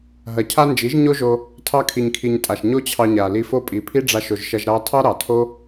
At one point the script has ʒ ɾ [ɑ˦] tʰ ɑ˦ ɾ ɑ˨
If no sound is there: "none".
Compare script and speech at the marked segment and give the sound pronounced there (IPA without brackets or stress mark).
ɑ˦